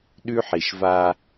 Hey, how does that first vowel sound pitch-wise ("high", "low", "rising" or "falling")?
high